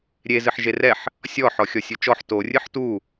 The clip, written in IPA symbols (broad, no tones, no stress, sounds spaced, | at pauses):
ɾʲ e z ɨ ħ ʒ e r ɛ ħ | sʲ ɔ ħ ɔ xʲ ɔ sʲ u t͡ʃ ɔ ħ t o rʲ ɨ ħ t u